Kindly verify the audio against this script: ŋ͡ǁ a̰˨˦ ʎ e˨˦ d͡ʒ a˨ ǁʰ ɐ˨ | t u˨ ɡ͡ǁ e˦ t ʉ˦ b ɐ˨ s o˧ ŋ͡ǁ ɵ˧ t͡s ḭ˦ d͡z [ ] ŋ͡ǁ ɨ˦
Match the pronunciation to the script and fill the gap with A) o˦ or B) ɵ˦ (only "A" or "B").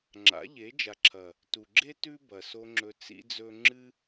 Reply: B